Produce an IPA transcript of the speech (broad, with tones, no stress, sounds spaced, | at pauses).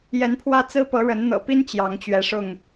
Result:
j ɛ˨˦ n pʰ w ä˦ t͡s ɹ̩˦ p ɤ˨˦ ɻ ə˨˦ n n̪ ɤ̰˨˩ p i˦ n t͡ɕ j ɑ˨˦ ŋ t͡ɕ ɥ ɛ˨˦ ʂ ʊ˥˨ ŋ